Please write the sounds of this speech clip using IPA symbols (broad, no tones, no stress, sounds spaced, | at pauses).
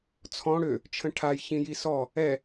t͡sʰ ɔ̃ ɽ ø | t͡ʃʰ ə̃ ʈʰ a j ç ĩ j i s ɔ | ɛ